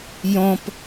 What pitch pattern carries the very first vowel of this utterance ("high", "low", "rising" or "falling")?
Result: high